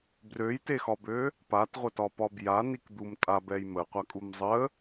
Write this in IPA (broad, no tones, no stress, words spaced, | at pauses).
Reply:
brøjtexɒbø | patʁʷətɒpɒ bjanikd̪um tʼabɛj məqʷakʼum zˤə